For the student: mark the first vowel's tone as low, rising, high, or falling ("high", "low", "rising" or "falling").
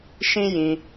high